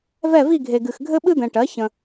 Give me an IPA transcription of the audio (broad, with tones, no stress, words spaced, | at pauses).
vɛ˦˨vi˦˨ɡʱe˨ɡɨ˨x ɡʱɘ˥ɓɨ˥d̪ɛ̃˨ʈɜ˩˥ çə̃˨